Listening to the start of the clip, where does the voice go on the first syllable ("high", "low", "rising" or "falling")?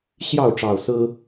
falling